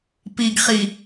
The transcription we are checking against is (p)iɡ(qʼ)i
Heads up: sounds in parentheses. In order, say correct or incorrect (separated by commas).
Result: correct, incorrect